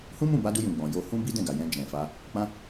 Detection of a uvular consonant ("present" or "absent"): absent